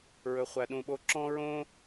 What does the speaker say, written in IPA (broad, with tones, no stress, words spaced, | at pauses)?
ɹɵ˧χʷæ˧ɗũ˧ɓo˥ ǁɔ̃˥ɹõ˥